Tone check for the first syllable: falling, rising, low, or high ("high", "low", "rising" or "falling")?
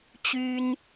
high